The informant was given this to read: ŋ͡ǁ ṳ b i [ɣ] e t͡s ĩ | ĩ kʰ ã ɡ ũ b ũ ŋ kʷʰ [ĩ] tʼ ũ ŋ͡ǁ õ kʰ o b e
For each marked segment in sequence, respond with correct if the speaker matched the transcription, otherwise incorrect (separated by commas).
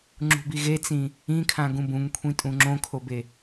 correct, correct